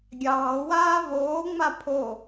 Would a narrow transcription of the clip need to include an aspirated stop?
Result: yes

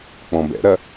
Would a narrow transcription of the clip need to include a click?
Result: no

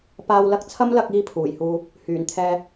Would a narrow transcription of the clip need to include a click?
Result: no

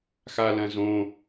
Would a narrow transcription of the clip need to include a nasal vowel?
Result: yes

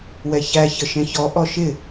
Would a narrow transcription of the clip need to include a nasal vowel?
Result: yes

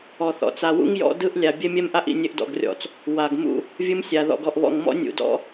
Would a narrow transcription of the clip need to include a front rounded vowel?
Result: no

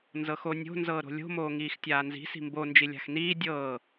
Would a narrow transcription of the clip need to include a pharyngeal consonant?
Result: no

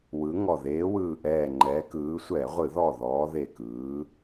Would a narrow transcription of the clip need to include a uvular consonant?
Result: yes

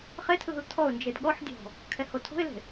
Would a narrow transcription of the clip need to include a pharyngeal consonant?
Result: yes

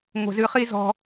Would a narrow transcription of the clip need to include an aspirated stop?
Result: no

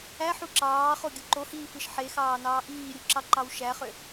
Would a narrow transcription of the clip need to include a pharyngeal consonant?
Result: yes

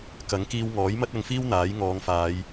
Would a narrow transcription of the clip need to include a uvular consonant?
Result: no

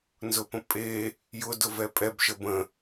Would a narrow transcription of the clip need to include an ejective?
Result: yes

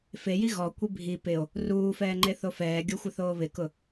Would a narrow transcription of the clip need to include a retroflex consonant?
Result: no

